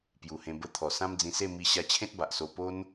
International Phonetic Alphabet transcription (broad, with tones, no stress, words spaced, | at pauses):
pju˨˩hẽ˧ bə˧ t̪ʰɔ˨˩sã˦md͡zĩ˧se˥˧ mi˧ɕa˧ t͡ɕʰẽ˦t̚ba˨ʔ so˧ po˦n